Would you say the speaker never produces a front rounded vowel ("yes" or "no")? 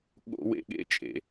yes